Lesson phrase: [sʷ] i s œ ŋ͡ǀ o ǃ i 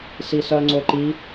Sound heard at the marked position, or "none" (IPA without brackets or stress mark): s